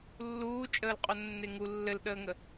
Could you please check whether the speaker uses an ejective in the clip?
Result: yes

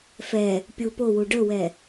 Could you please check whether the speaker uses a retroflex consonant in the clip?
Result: yes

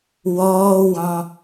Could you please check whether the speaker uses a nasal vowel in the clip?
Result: yes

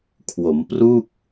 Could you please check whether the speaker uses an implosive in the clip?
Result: no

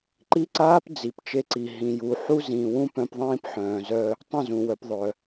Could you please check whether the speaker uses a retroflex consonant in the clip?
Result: no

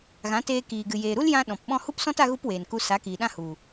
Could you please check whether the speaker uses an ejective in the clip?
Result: no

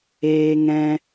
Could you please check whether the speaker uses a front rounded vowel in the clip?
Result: no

